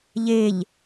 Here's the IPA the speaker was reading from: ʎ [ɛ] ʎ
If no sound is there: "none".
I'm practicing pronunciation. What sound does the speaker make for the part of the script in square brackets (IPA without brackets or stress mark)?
e